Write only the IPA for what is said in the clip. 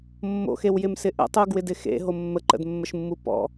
mː o̰ x e w j ɪ m s ɪ ʔ ə̰ tˤ u ɡ w ɪ d ɪ x ḛ ɦ o mː ə ǃ ə̰ d mː ə ʃ mː u p ɔ̰

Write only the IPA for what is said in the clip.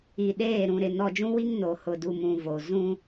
i˨ ɗ eː˦˨ ɾ ũ˨ ɾ ɪ˨ n ɔ˨ d͡ʒ ũ˦ w i˦ ŋ n o˨ h ʊ˨ d u˨ m ũ˨ v o˨ z ũ˦

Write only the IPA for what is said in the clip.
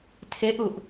tʰ e ʔ u ʔ

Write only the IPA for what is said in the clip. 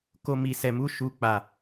k o˦ m i˧ s ɛ˧ m u˦ ʃ u˧ k͡p a˨

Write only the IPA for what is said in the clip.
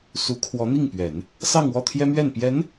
s u˧˥ kʰ w ɔ˧˥ n̪ i˥˩ ŋ p ɥ ɛ˨˩˦ n | s ɑ˥˧ ŋ w ɔ˥˩ t̪ʰ j ɛ˥ m ɥ ɛ˥˩ n p j ɛ˧˥ n

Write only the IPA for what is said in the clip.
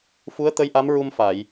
f u˧˥ ə̯ t̪ ə˧˥ j ʔ a˧˥ m ɹ u˧ m f a˨˩˨ j

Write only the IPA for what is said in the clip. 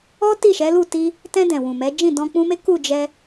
ɔ˦ t i˦˨ ʃ ɛ˨˦ l u˦˨ t i˧ | t ɛ̃˧ d ɛ̃˨ w ũ˨ m ɛ˨˦ d͡ʒ ĩ˦˨ d ɔ̃˧ k͡p ũ˧ m e˦ k u˦˨ d͡ʒ ɛ˧

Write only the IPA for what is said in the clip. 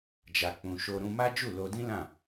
d͡ʒ a˨ k͡p ũ˨ ʃ o˧ ɾ ũ˧ m a˦ d͡ʒ u˦˨ l o˧ d ĩ˦ l ã˦˨

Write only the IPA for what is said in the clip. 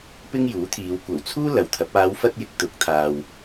p ɪ˥ ŋ j uː˨˥ t̪ʰ iː˨˧ w kʷ ɐ˨˩ w t͡sʰ uː˥ l ɐ˨ w t̪ʰ ɐ˨˥ p̚ aː˨˧ w f ɐ˧ t̚ j ɪ˨ k̚ t̪ ʊ˨˥ k̚ t̪ʰ aː˨ w

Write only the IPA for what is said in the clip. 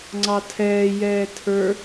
ŋ͡ǀ ɑ tʰ ɛː j ɛː tʰ ə˞

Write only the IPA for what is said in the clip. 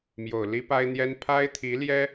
m j o˨˩ ʊ̯ l i˥ p a˥ ɪ̯ n̪ j ɛ˥ n pʰ a˥ ɪ̯ t̪ʰ i˧˥ l j ɛ˥

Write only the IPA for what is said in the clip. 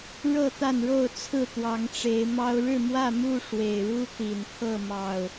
ɻ ɤ˥˨ t̪ a˥˨ n ɻ o˥˨ ʊ̯ t͡sʰ ɹ̩˥˨ t̪ w ɑ˨˦ ŋ ʈ͡ʂ e˨˦ ɪ̯ m ɑ˦ ʊ̯ ɻ ɻ̩˥˨ m w ä˥˨ m u˥˨ ʂ w e˨˩ ɪ̯ ɻ u˦ t̪ i˨˩ n t̪ʰ ɤ˥˨ m ɑ˨˩ ʊ̯

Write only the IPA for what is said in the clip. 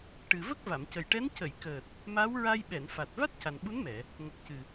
ʈ ɨ˨˩ v ə˦˥ k̚ v a˨˩˨ m c ə˨˩ j ʈ ɛ˧˥ n c ə˨˩˨ j k əː˨˩ t̚ | m a˧˥ w ɹ a˧ j ɓ ɛ˨˩˨ n f a˨˩ t̚ v a˦˥ t̚ c a˨˩ n ɓ u˧˥ n m ɛ˨˩˨ | ŋ ə˨˩ k̚ c ɨ˨˩

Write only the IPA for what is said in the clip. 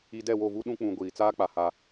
i˨ d ɛ˦˨ w o˦˨ v u˦ ɗ ũ˦ k͡p ũ˨ ɡʷ iː˨ t͡s aː˦ k͡p a˨ h a˦

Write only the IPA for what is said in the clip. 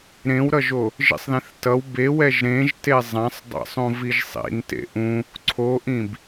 ɾ ẽ w ɾ ʌ ʒ o | ʒ ḭ sˤ ð ẽ θ t ʌ w b e w ɛ ʒ ɾ ẽ ʒ t e zˤ ã sˤ dˤ a̰ sˤ ũ v i ʒ sˤ ḭ n t ḛ ʔ ũ | ǀʰ o ʔ ĩ b

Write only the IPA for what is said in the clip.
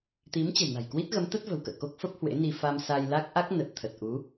t̪ i˨˦ m t͡ɕ ə̤˨˩ w n a̤˨˩ j k w i˦˥ t̚ ɣ ə˨˦ m t̪ ə˦˥ t̚ v ə̤˨˩ w k ə̰ː˧˨ k o˦˥ k̚ f ə˦˥ p̚ h w ḛ˧˥ n i˧ f a˧ m s a˧ j l a˦˥ k̚ ʔ a˦˥ k̚ n ə˨˩ t̚ t̪ʰ ə˨˩ t̚ ʔ u˨˦

